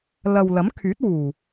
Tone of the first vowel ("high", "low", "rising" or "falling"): low